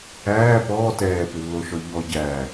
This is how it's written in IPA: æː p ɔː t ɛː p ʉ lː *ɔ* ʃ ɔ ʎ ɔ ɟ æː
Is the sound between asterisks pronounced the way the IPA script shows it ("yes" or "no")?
no